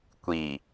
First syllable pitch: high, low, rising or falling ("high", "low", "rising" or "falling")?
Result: low